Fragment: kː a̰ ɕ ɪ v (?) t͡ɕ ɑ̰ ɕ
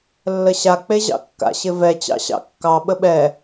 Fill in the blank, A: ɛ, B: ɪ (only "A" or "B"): A